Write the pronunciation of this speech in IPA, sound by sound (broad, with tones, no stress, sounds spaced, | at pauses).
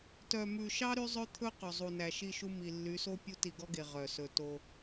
t œ˨ m ʉ˨ ʃ ɑ˦ ɾ y˦ zˤ ø˦ t̪ʰ ɵ˦ q ɵ˨ zˤ u˨ n æ˨ ʃ i˦˨ ʃ u˦ m i˨ lː y˨˦ s o˦ pʲ u˦ t i˨ ɡ ɔ˦ ɡ e˨ ʁ œ˨ s ɵ˨ t o˦